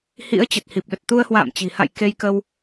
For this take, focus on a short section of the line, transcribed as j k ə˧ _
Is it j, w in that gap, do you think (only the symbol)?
w